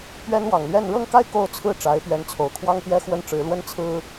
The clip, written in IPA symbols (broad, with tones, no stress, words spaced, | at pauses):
pɥɛ˥nwɑ˨˩ŋ lɥɛ˥˧n ɻɤ˥˧ŋka˥˧ɪ̯ ko˥˧ʊ̯t͡sʰɹ̩˥˩ ʈ͡ʂa˧˥ɪ̯pɥɛ˧˥nt͡sʰo˨˩ʊ̯ kʰwɑ˥ŋpjɛ˥ xwə˥nʈ͡ʂɻ̩˧˥ lwə˥n t͡sʰɹ̩˥